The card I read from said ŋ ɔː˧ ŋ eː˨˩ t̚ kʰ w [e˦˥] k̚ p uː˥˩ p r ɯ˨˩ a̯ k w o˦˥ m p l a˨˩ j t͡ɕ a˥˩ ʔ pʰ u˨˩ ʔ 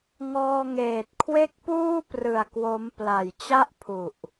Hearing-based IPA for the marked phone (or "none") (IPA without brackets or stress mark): e˥˩